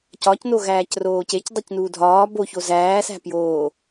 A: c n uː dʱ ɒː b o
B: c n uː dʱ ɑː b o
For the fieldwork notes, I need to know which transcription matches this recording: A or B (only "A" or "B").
A